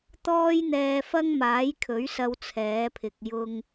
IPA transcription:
t̪ ɔː˥ j n̪ ɛː˧ f ɐ˥ ŋ m aː˨˥ j kʰ ɵ˨˥ ɥ s ɐ˥ w t͡sʰ ɛː˨˥ pʰ ɪ˨ k̚ j ʊ˧ ŋ

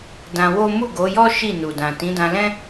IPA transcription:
d ã˧ w o˦ m u˦˨ ɡ o˨˦ j ɔ˦ ʃ i˦˨ n u˨ d ã˨ t ĩ˨˦ d ã˧ l ɛ̃˦

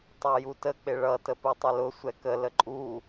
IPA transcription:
tˤ ɑ j u t ə k͡p ɪ ɭ ʌ t ə p u tˤ ɪ l ʊ sʷ ɛ k ə l ə ǃʼ u

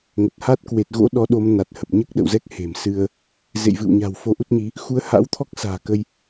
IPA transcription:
ŋ ə˨˩ t̚ h a˦˥ t̚ k w e˨˩ t̚ ɣ o̰˧˥ ɗ ɔ˨˦ ɗ o˨˦ m n a˨˩ t̚ h ə˨˩ p̚ ɲ ɨ˦˥ k̚ ɗ ə̰˧˨ w z ɛ˦˥ k̚ h e̤˨˩ m s ɨ˧ ə̯ | z ḛ˧˨ j v ɨ̰˧˨ w ɲ a̤˨˩ w f o˧ ʔ u˦˥ t̚ ɲ i˨˦ | x u˨˦ ə̯ h a̰˧˥ w t̪ʰ ɔ˦˥ k̚ s a̤ː˨˩ k ə˧ j

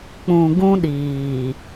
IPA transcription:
k͡p ũ˨ ɡ ũ˦ ɗ iː˨

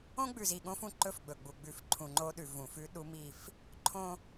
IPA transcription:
õ˦ ɡ͡b ʉ˨ z i˨ ɠ õ˦ f ũ˦˨ ǃ ɵ˦ f ɡ͡b ɵ˨ ɡ͡b u˨ ɡ͡b ʉ˨ f ǃʰ ũ˨ ŋ͡ǃ o˦ ɗ ʉ˨ v ũ˨ f ʉ˦ ɗ u˦ m i˦˨ f | ǃʰ õ˦

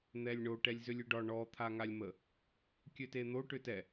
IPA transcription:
n̪ ɛ lʲ ɳ o ʈ ɛ lʲ z ʏ lʲ ʏ ɖ ɒ ɳ ɔ t̪ʰ a ŋ a lʲ m ə | kʲ ø t e n̪ o ʈ ʏ t ɛ

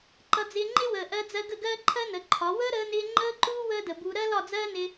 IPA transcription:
ǃ ʌ˧ d͡z ɪː˧ ŋ͡ǃ ɪ˦ w əː˨ ʔ ɜ˧ d͡z ɜ˧ ɡ ə˦˨ ɡ ɜː˦ ǃʰ ɜ˦ n ə˨˦ ǃʰ ɒ˨˦ w əː˦ ɾ əː˧ n ɪː˧ ŋ͡ǃ əː˦ ǃ uː˦ w əː˦ d ə˨ b u˧ ɾ ɜ˦ l ɒ˦˨ d͡z ɜː˦ n ɪ˧

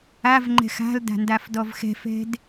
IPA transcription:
a v ŋ͡ǃ ɛ̤ x a̤ l d a̤ n d a f d ɔ v x ɛ̤ f ɛ̤ d

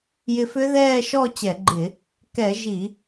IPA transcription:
j ɪ˧ f ʏ˦˥ ð ɛː˥˨ ʃ ɔ˥˨ t͡ɕ ɛ˧˩˧ ɡ͡ǃ ɪ˧˩˧ | k ɛ˧˩˧ ʒ i˧˩˧

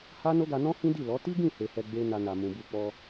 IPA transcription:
h a˦ n o˦ ɡ a˧ n ɔ̃˦ h ĩ˦ d i˦˨ l ɔ˨˦ t i˦ ɡ ĩ˦˨ h e˨ h ɛ˧ ɡ͡b e˦ n a˧ n a˨ m ũ˨ b u˧ k͡p ɔ˧

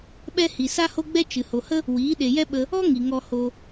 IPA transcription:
ɓ ɛ˦ h i˨ s a˦ h o˦ ɡ͡b ɛ˦ t͡ʃ ɨ˨ h o˨ h ə˦ | w iː˨˦ ɗ e˨ j ɛ˦ ɓ ə˧ | ɔ˦ ŋ i˨ ŋ ɔ˧ h o˧

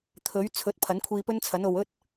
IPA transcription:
t̪ʰ ɵ˨˥ ɥ t͡sʰ ɵ˨˥ t̚ pʰ ɐ˨˥ n kʷʰ iː˧ p ɵ˥ n t͡sʰ ɐ˨˥ n o˨ w ɵ˥ t̚

